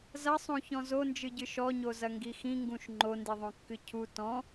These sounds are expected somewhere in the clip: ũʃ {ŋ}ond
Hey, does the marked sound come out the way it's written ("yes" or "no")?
no